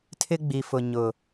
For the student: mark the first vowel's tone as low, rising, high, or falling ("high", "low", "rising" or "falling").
high